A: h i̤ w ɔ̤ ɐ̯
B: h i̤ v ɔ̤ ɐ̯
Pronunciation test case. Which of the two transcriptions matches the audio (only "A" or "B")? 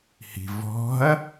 B